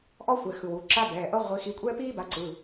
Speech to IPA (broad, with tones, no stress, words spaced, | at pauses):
ʔɔ˥xʷɛ˩˧˩ xɯ˩˧˩wu˩˧˩ ǁa˥bɛː˩˧˩ʔɤ˥ ʁʷi˨˦ xi˨˦kʷʼɛː˥piː˥ba˨˦ ǀɯ˩˧˩